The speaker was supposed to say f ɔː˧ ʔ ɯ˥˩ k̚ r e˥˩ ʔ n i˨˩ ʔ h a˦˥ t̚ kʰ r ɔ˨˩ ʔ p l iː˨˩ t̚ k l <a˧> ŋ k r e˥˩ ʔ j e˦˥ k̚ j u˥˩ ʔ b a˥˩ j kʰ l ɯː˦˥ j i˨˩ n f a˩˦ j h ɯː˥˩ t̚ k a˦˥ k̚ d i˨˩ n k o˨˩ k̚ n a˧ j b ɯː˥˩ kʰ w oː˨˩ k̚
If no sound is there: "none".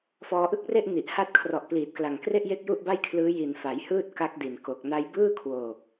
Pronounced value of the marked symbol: a˨˩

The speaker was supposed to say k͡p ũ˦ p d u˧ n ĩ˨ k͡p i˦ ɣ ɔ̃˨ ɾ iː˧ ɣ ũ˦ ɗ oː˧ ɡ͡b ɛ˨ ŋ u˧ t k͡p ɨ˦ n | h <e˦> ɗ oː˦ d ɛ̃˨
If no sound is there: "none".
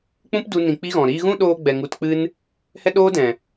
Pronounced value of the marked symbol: ɛ˦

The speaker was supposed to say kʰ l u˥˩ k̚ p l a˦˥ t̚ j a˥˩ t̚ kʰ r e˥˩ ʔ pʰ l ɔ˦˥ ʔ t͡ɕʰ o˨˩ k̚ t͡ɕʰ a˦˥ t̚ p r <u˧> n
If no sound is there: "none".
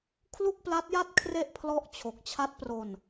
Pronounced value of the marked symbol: o˧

